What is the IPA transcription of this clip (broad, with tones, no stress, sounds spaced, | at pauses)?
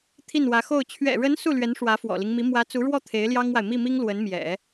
t̪ʰ i˥˩ n w ä˧˥ x o˥˩ ʊ̯ t͡ɕʰ ɥ ɛ̰˨˩ ɻ ə˧˥ n s u˥˩ l ɥ ɛ˧˥ n ʂ w ä˧˥ f w ɔ̰˨˩ l i˦ ŋ m i˧˥ m w ä˧˥ t͡s u˧˥ ɻ w ɔ˥˩ t̪ʰ e˧˥ ɪ̯ l j ɑ˥ ŋ w a˨ ɪ̯ m i˥˩ m i˥ ŋ l w ə˧˥ n m j ɛ̰˨˩˦